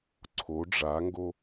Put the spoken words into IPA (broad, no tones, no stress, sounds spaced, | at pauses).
ǀʰ o ɖ͡ʐ a ŋ ɡ o